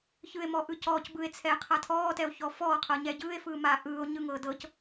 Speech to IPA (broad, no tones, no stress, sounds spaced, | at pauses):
ç ɯ e̯ m ɔ ʔ ɯ c ɔː c b ɯ e̯ t͡sʰ ɛː qʰ a tʰ ɔː t ɛ o̯ ç ɔ f ɔː qʰ ɤ ɲ ɛ ɟ ɯː e̯ f ɯː m aː ʔ ɯː o̯ ɲ ɯ ŋ ɤː d ɤ c